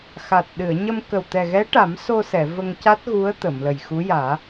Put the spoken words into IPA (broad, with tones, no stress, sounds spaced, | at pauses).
x a˨˩ t̚ ɗ ɨ˨˩˨ ə̯ ɲ ə˧ m k ə˨˩ w t̪ ɛ˨˩ ɣ ɛ˧˥ ʈ a˨˩˦ m s o˧ s ɛ˨˩˨ v ə˧ ŋ c a˦˥ t̚ ɣ u˧˥ ə̯ t̪ ə˨˩˨ m l ə˨˩ j x u˧˥ j aː˨˩˦